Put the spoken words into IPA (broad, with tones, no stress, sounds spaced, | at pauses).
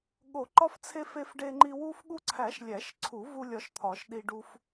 ɠ o˨˩˦ ǃ ɒ˧ f t͡sʰ e˧ f e˧ f ɖ e˧ ŋ͡ǃ i˧ w u˧ f ɠ u˧ ǀʰ æ˨˩˦ ʃ lʲ æ˨˩˦ ʃ ǀʰ u˨˩˦ v u˧ lʲ ɒ˧ ʃ t̪ʰ ɒ˨˩˦ ʃ ɗ i˧ ɖ u˧ f